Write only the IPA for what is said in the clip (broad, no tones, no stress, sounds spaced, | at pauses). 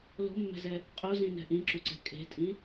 l o̤ mː ɛ̤ z ɛ | qʼ o z ĩ n ɛ̤ ʔ ĩ ǁ u ǀ ɛ̤ kʼ e̤ tʼ ĩ